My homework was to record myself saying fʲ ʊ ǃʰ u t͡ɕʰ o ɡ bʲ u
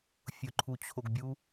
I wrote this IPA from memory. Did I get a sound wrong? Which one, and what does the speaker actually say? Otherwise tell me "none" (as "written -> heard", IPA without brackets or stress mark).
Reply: none